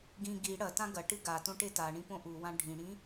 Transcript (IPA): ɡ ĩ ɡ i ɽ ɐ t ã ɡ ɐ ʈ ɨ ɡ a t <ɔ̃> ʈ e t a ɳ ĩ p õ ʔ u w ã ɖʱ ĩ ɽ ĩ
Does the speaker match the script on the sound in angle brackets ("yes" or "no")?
no